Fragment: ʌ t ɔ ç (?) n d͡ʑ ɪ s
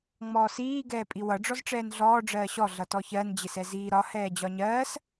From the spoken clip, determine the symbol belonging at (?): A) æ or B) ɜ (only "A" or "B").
B